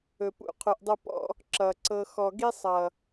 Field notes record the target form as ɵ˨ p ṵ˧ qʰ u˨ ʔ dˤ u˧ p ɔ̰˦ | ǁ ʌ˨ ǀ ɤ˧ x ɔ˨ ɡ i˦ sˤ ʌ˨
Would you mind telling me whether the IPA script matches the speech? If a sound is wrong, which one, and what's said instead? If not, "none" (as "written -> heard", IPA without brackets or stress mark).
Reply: none